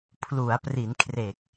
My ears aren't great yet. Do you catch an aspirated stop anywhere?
yes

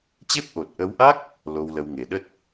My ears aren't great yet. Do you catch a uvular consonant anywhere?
no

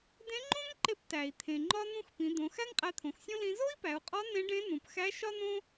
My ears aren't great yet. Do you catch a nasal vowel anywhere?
yes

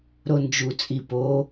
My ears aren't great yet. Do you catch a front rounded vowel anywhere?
no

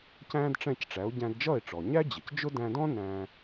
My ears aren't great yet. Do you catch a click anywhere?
no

